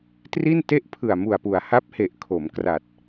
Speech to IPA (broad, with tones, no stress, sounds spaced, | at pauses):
t r i˥˩ n t e˥˩ ʔ pʰ ɯ˨˩ a̯ m u˨˩ a̯ p u˩˦ a̯ h a˦˥ p̚ h e˨˩ ʔ kʰ o˩˦ m k r a˨˩ t̚